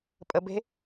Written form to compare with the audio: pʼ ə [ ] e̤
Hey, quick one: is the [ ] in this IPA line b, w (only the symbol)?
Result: b